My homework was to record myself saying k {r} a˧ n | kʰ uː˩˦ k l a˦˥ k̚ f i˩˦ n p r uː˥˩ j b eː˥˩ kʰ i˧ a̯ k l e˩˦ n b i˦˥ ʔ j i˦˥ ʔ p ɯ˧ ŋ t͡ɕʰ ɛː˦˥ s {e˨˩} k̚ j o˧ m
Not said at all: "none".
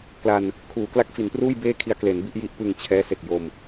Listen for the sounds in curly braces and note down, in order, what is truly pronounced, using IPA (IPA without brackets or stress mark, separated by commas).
l, e˨˩